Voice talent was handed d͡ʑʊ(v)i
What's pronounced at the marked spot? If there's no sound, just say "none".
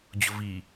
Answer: v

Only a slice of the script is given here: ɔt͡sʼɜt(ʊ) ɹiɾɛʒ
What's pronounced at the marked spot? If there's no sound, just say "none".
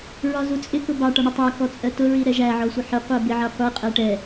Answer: ʊ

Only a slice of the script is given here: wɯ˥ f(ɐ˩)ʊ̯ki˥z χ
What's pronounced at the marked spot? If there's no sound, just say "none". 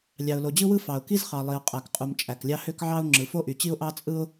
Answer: ɑ˩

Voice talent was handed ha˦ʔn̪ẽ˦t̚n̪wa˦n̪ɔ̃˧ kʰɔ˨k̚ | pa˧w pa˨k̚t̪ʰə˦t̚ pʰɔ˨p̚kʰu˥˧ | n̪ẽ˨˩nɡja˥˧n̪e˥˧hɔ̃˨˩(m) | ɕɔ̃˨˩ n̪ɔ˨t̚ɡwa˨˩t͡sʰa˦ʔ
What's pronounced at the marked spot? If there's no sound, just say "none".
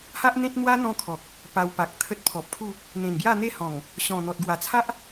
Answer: ŋ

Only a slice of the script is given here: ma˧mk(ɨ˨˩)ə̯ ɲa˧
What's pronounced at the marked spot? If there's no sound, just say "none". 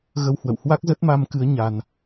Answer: ɨ˨˦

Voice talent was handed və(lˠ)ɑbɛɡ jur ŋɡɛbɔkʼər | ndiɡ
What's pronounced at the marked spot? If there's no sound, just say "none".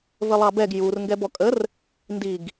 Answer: lˠ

